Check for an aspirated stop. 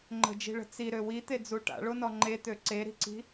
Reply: absent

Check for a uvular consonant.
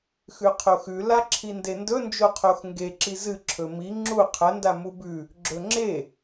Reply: present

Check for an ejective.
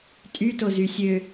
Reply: present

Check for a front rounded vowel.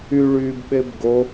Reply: present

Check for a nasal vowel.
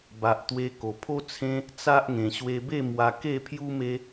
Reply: present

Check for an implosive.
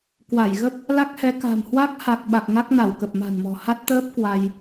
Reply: present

